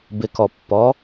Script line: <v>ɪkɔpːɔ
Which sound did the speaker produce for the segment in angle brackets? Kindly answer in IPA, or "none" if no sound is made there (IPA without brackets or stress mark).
b